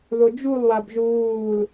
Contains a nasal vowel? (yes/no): no